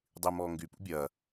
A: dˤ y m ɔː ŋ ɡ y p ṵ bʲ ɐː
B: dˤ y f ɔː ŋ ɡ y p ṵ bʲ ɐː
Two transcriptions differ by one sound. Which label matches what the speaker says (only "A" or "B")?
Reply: A